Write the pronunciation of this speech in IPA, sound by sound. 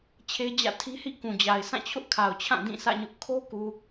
t͡ɕʰe˦d͡ʑä̰˦˨ tʰi˦hḭ˦˨kũ˨d͡ʑa˨ɪ̯ sã˦˨t͡ɕʰʊ˦ʔkʰa˨ʊ̯t͡ɕʰã˦˨ dĩ˦˨sä̰˦˨ɲʊ˦ʔ kʰo˦ku˨

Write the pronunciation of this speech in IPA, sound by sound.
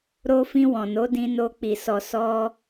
ɾo˧fĩ˧ wɔ̃˨no˨˦dĩ˧ no˧k͡pi˨sɔ˨ sɔ˧

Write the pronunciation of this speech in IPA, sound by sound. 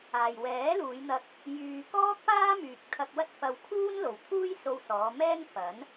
aː˨jwɛː˨˥luː˨˧j n̪ɐ˧k̚ | jyː˧ kɔː˥k̚paː˥ myː˨k̚t̪ʰɐ˧k̚ wɐ˥t̚fɐ˧w kʰuː˥nlo˨wt̪ʰuː˥j so˧wsɔː˨˧ mɛː˥ŋfɐ˨˥n

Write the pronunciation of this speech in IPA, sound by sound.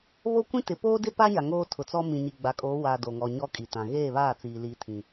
βo˦kʷĩ˦tɪ˨ poː˦dɪ˦pa˦ɲa˨ ŋoː˦tʰʊ˨t͡sɔ˦ mĩ˨ɲi˨ɡ͡ba˨kʼoː˨˦ waː˨ do˨ ŋɔ˨ ɲɔ˦kʼi˨tã˨ ɣeː˦˨βaː˦˨t͡siː˨li˨˦ tʰĩ˨

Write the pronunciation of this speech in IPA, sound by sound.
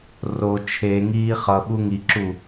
ro t͡ʃʰeŋiː χʌ ɓuŋiǁu

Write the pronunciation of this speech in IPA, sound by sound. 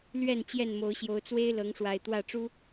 lɥɛ˥˨n t͡ɕjɛ˥˨nmo˨˦ʊ̯ɕjo˨˦ʊ̯ t͡swe˦ɪ̯ lɤ˨˦ŋʂwa˨˩ɪ̯ t̪wä˥˨ʈ͡ʂu˦

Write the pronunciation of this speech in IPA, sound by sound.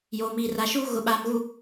joː˨miː˨ra˨ʃuː˦ ɣʊ˨ɓaː˨mɣu˨

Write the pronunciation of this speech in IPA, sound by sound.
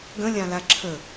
ɡə̃lʲãla ǁʰə

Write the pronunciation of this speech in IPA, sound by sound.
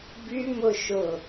bymʊ ʃʊ

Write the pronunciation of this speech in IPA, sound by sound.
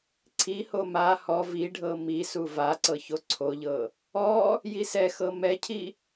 ǀʰiho ma hɔ viɖʱɤ mi suvaǀɤ çoǀʰoʎɤ | ɔ | jisɛxɤ mɛcʰi

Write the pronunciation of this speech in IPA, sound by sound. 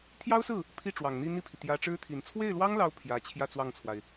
t̪ʰjɑ˥ʊ̯sɹ̩˥˩ | pʰi˥˩ʈ͡ʂwɑ˨˩ŋn̪i˥˧ n̪i˥˩pʰi˩ t̪jä˧˥ʈ͡ʂɻ̩˥t̪ʰi˨˩n t͡sʰwe˥˩ɪ̯lwɑ˥ŋlɑ˧˥ʊ̯ pʰjä˧˥ t͡ɕʰjä˥˧t͡swɑ˥˩ŋt͡sʰwa˩ɪ̯

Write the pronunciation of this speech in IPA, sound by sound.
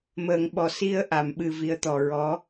məː˨˩˨ŋ ɓɔ˨˩ si˧ə̯ʔa˨˩˨mɓɨ˨˩ vi˧ə̯t̪ɔ˨˩ ɹɔ˧˥

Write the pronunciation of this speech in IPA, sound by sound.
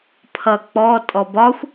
pʰʌ k͡pɔ tʼɔbɒxʷ

